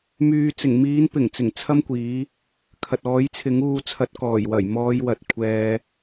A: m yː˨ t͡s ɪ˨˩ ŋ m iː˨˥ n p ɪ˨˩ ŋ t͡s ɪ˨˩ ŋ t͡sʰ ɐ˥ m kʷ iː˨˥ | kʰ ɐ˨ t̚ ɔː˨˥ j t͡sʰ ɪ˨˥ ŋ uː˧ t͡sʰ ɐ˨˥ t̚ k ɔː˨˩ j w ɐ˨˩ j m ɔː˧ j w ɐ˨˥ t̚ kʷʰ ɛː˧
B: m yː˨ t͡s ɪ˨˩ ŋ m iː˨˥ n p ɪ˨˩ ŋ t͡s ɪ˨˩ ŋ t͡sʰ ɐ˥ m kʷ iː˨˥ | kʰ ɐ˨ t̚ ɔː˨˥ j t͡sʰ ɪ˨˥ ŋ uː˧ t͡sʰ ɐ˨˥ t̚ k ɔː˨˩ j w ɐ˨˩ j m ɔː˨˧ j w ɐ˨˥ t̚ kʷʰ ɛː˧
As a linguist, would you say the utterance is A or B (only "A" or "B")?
A